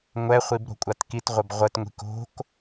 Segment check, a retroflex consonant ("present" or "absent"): absent